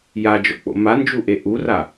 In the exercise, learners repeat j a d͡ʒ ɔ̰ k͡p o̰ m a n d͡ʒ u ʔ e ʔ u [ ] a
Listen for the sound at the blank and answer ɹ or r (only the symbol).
r